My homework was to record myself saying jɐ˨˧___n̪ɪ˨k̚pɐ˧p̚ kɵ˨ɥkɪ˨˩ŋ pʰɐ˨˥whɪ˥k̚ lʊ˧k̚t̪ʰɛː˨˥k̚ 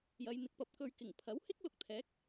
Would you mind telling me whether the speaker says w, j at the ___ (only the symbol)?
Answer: j